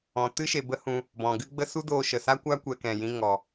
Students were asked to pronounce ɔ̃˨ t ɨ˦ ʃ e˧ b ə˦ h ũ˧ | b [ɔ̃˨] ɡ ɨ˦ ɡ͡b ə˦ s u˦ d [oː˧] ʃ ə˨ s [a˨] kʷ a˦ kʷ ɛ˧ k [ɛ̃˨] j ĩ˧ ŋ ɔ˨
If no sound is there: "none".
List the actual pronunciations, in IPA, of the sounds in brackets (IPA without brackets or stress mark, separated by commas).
ɔ̃˨, oː˧, a˦, ɛ̃˨